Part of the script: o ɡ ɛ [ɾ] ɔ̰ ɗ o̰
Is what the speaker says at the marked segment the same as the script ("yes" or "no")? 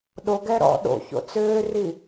yes